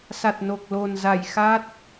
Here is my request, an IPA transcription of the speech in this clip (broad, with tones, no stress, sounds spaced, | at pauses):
s a˨˩ t̚ n o˨˩ k̚ l o˨˩ n z a˧˩ j x a˦˥ t̚